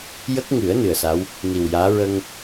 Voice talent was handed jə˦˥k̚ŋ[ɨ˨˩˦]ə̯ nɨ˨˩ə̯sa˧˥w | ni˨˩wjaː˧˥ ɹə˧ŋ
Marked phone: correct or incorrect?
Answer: correct